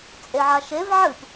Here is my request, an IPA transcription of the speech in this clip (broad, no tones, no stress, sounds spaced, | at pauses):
t͡sʼ e ʕ a ʃ e v ʕ ɨ p